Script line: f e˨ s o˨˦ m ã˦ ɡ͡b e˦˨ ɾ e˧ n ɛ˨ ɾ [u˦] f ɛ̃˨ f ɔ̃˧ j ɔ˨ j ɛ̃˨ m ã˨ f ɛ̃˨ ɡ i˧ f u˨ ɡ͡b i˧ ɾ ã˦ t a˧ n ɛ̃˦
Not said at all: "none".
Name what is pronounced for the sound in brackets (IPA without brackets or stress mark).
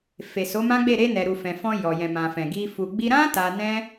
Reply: u˨